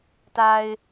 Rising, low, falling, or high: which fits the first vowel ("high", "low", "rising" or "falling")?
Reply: low